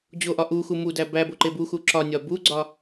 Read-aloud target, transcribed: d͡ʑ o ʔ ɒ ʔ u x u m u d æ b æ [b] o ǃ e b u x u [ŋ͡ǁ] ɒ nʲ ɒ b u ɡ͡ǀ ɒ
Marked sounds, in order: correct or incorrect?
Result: correct, incorrect

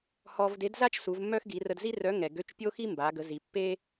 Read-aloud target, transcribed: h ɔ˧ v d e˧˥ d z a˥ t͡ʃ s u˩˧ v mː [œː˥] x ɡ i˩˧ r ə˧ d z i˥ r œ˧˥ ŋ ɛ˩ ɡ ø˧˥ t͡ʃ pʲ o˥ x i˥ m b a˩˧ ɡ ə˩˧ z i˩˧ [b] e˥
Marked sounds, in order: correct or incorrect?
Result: incorrect, incorrect

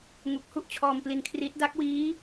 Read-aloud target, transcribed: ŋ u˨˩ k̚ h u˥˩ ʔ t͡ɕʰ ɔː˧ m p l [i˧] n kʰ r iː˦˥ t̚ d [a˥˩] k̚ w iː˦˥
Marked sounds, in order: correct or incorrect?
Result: correct, incorrect

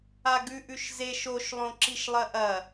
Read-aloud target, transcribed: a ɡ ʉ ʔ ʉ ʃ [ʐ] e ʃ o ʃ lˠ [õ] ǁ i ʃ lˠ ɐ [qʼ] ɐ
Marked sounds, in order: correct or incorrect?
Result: incorrect, correct, incorrect

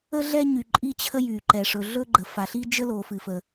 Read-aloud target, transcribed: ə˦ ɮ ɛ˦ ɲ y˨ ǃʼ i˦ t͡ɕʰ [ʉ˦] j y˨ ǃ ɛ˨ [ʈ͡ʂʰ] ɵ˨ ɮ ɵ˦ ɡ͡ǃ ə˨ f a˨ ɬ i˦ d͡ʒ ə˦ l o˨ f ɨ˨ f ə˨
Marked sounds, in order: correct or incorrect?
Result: incorrect, incorrect

